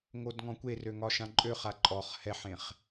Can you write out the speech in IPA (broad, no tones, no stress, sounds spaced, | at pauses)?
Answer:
ŋ o d ŋ ɔ̃ kʷ e r ø ŋ ɒ ʃ ã ǃʼ ø χ a ǃʼ ɔ χ h ɛ ħ ẽ χ